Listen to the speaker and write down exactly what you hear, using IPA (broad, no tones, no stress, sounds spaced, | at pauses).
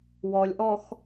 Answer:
w ɔ lʲ ʔ ɔ x